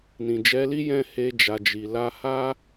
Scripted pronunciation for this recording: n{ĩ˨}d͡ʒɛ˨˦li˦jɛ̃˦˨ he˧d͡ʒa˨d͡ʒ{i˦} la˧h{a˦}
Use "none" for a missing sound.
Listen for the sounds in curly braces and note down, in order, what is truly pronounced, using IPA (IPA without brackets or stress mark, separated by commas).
ĩ˨, i˨, a˦